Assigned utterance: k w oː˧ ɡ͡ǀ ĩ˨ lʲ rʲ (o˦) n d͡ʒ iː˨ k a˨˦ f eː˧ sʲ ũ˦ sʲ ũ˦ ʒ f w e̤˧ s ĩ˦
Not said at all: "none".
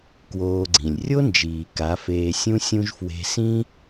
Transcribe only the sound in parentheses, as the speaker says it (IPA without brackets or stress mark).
o˦